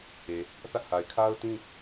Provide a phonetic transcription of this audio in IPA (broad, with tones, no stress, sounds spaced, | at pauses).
h e˨ | θ ä˦ ʔ h a˨ ɪ̯ kʰ a˦ ʊ̯ t ĩ˦